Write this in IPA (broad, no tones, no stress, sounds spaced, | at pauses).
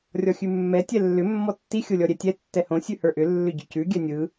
rʲ ɔ xʲ ʉ mː ɛ tʲ ɛ lː ʏ mː ɔ tː i xʲ o lʲ ɔ ɾʲ ɛ tʲ ɛ tː ɛ h õ sʲ ʉ h ə˞ ʔ ʏ lː ʏ ɟ ʏ c ʉ ɡʲ ɛ nʲ ɯ